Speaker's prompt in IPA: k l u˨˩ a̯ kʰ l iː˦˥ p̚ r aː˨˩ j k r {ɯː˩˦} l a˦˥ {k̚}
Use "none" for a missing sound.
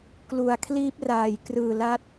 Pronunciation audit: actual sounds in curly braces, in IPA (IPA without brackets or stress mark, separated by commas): ɯː˨˩, t̚